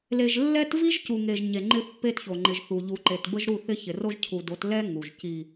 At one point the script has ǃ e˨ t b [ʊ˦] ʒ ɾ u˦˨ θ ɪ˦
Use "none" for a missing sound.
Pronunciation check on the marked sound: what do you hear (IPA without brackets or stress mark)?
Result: ə˦